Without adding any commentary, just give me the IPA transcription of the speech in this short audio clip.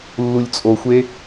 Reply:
lː u lʲ t͡sʼ o xʷ e

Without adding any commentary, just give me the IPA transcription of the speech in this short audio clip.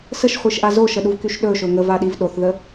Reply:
s ə ʃ χʷ i ʃ ʔ a z o ʃ ə ɗ u v k y ʃ ɗ ɵ ʃ ɵ ŋ ə v a ɗ i v ɗ o θ ð ə

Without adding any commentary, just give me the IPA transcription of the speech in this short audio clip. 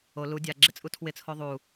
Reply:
o l u dʲ a ɡ͡ǁ ɪ t͡sʼ u tʰ w ɪ t͡sʰ o ðˤ u

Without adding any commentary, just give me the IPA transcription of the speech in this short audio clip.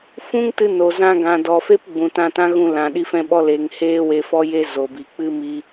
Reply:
f ũ˦ ŋ t ɨ˧ n o˨ z ã˧ ɡ ã˨ d ɔ˨ f e˦ p ɡ͡b ũ˨ t ã˧ t ã˦ ɣ ũ˧ l ã˨ ɗ i˧ f ɛ̃˧ ɓ ɔ˧ l eː˨ ŋ h eː˧ w e˨ f ɔ˦ j e˦ z o˨ b i˨ k͡p ɨ˦ m i˧

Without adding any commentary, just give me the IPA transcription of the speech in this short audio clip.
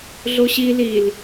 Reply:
ɮ o ɕ i l i l

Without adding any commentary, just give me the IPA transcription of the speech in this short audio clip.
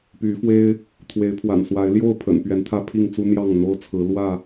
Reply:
p y˨˦ f w e˦ ɪ̯ | t̪ʰ w e˨˦ ɪ̯ pʰ w a̰˨˩ n s w a˨˦ ɪ̯ l j o˥˨ ʊ̯ pʰ ə̰˨˩ n p ɥ ɛ˨˦ n t̪ʰ ä˥˨ pʰ i˥˨ ŋ t͡s u˦ n̪ j ɑ˥˨ ŋ n̪ o˦ ʊ̯ t͡sʰ ɹ̩˨˦ l w ä˥˨

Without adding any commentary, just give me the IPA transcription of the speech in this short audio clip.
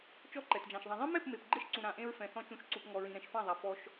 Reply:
t͡ʃ ɔ˦ ǃ ɛ˨ t d͡ʒ ã˨ ʃ ðˤ ã˨ ðˤ ɛ̃˦ m ɛ˦˨ p m e˨ p ɡ͡ǃ e˦ ʃ ǀ ũ˨ ɾ ã˨ ʔ ẽ˦ ɹ f ɛ̃˨ θ ɔ̃˦ t͡ʃ ũ˨˦ ʃ ǀ u˨ p ŋ ɔ˨ ɹ ĩ˨ ɾ ɛ̃˨ ʃ f ã˦˨ ðˤ a˨ f ɔ˦ ʃ

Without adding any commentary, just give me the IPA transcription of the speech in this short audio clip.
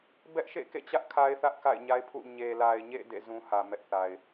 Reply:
b ɛ˦ ʔ ʃ ḛ˦˨ k ḛ˦˨ t͡ɕ ä˦ ʔ kʰ a˦ ɪ̯ θ ä˦ ʔ k a̰˦˨ ɪ̯ ɲ a˦ ɪ̯ pʰ ṵ˦˨ ɲ e˨ l a˨ ɪ̯ ɲ ḛ˦˨ d ḛ˦˨ z ũ˦ h ä˨ m ɛ˦ ʔ θ a˨ ɪ̯

